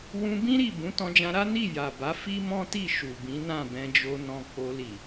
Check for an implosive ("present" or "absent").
absent